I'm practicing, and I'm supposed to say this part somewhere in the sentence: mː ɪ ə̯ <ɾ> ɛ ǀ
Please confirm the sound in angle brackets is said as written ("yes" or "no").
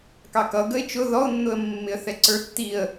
no